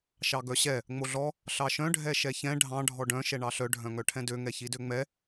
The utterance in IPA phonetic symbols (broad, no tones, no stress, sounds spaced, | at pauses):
ʃ ɑ ɡ œ ɕ ɛ | ŋ͡m o ɮ ɔ | ɬ ɑ ʃ œ̃ ɖʱ ɛ ʃ ɛ ç ɛ̃ ɖʱ ɑ̃ ɖʱ ɔ ɖ œ̃ ʃ ɛ ɳ ɑ ɬ œ ɖʱ œ̃ ŋ œ ʈʰ ɛ̃ d ø ŋ ɛ ç i d ø ŋ͡m ɛ